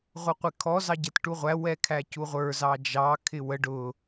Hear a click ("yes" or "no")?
no